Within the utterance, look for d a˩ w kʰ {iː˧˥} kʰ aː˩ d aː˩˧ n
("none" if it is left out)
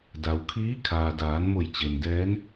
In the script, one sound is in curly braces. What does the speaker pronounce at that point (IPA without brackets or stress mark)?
iː˧˥